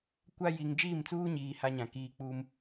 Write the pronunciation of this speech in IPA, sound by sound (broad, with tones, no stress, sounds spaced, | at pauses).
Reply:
kʷ a˦ j i˨ ŋ d͡ʒ iː˦˨ m t͡s uː˦ ɲ iː˨ h a˦ ɲ ã˨ k iː˦ k͡p u˦ m